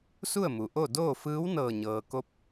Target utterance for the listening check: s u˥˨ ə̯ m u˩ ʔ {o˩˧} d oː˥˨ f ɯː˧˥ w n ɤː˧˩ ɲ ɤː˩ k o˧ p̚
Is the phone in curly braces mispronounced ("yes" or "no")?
yes